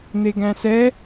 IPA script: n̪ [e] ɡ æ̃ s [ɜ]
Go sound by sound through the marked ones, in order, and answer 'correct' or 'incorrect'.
correct, incorrect: ɛ

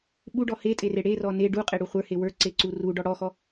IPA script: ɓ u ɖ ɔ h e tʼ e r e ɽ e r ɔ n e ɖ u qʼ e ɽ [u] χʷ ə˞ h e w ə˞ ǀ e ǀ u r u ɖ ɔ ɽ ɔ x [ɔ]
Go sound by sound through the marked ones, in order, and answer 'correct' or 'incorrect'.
correct, correct

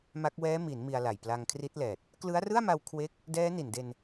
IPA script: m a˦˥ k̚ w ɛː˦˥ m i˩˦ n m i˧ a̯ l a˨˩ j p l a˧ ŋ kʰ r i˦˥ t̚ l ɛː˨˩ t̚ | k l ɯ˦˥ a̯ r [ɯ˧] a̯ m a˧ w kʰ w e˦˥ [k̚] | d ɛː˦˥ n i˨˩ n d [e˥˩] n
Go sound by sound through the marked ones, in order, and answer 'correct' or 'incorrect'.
incorrect: ɯ˥˩, correct, incorrect: e˧

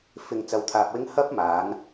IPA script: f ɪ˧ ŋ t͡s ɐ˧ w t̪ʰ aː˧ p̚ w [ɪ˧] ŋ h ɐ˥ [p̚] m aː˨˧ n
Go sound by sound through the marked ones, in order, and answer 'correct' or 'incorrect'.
incorrect: ɪ˥, correct

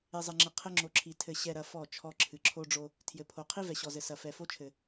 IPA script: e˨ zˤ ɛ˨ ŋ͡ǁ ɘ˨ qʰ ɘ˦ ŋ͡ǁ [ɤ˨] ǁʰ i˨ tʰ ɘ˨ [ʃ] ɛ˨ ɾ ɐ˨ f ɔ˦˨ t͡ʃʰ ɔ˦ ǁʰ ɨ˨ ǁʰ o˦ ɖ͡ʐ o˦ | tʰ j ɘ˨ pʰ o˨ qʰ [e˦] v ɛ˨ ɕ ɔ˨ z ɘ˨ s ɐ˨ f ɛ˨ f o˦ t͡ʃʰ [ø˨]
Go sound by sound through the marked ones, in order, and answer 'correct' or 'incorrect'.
incorrect: o˨, incorrect: ɕ, incorrect: i˦, incorrect: ɘ˨

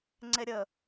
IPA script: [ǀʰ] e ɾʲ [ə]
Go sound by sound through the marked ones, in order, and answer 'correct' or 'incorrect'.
incorrect: ŋ͡ǀ, correct

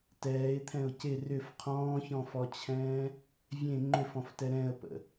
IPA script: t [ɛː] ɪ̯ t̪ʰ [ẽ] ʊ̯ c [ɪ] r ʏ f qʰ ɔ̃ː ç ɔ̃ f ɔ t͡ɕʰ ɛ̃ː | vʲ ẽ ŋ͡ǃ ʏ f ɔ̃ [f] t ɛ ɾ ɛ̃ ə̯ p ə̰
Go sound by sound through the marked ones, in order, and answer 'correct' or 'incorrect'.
correct, incorrect: ɛ̃, correct, correct

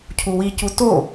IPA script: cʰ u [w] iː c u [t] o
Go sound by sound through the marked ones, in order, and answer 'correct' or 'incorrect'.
correct, correct

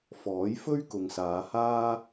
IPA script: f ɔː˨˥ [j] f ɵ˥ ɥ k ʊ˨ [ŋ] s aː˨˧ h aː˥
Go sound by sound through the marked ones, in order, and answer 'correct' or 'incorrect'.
correct, correct

